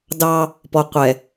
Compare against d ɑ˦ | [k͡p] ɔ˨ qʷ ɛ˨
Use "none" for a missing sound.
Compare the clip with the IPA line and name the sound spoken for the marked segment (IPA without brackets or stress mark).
p